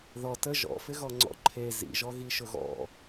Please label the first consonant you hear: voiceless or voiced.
voiced